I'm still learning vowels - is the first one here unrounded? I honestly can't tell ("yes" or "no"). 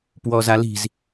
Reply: no